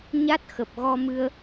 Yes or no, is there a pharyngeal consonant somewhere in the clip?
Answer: no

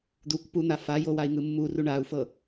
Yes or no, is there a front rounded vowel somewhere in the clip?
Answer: no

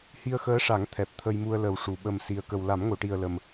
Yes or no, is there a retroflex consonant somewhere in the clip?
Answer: yes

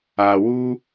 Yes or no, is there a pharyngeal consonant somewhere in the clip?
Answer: no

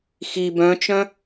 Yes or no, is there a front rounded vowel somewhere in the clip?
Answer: yes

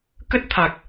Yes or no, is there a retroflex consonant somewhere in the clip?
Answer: no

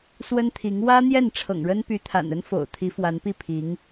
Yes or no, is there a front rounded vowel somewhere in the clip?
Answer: yes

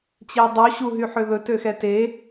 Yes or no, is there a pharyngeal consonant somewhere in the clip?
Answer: yes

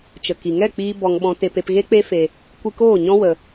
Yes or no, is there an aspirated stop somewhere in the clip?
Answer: no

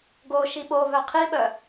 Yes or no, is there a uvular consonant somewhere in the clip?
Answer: yes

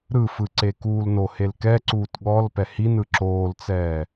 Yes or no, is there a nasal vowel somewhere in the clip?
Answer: no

